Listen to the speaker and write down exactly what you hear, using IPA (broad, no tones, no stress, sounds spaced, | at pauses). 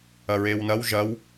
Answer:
ɐ ɹ e w n ɐ w ʒ ɐ w